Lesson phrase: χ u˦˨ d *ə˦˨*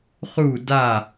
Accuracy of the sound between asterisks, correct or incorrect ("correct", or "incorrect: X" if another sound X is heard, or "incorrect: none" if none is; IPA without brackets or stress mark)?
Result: incorrect: a˦˨